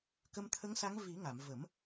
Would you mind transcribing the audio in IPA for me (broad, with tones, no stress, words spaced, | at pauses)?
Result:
kə˧mt̪ʰə˧˥ŋsa˧˥ŋ vi˨˩˦ŋa˨˩˨m və˨˩˦m